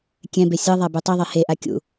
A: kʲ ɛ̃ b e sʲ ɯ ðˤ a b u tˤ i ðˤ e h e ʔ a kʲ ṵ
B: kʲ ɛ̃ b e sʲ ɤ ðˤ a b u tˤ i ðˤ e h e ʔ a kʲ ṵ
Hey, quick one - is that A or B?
B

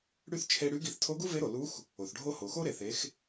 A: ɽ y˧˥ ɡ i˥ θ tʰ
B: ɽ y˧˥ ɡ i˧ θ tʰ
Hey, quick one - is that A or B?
B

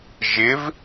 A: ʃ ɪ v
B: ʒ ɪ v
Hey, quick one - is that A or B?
B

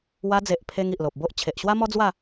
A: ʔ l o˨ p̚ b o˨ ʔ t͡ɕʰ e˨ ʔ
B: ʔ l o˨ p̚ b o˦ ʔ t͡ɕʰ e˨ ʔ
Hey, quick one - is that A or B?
B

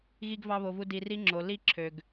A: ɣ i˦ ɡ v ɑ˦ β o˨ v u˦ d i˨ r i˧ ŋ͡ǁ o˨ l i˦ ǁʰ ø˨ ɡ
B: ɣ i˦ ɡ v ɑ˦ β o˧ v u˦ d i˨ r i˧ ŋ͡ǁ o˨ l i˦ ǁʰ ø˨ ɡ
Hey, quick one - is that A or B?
B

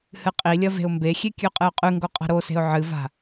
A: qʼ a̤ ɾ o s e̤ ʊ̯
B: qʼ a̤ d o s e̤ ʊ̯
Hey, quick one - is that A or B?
A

